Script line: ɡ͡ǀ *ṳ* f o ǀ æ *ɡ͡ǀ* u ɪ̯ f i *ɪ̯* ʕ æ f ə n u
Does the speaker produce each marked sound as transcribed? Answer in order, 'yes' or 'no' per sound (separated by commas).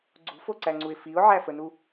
yes, no, no